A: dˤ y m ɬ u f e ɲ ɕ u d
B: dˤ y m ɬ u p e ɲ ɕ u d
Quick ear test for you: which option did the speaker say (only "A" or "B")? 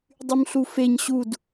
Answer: A